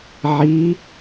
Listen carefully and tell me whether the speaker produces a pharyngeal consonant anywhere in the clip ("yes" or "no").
yes